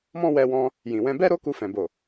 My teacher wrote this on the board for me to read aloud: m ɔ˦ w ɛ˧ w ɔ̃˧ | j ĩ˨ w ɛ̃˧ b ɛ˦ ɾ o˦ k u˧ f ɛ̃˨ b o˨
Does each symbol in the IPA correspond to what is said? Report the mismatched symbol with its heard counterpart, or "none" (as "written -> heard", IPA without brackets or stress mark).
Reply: ɔ˦ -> ɔ̃˦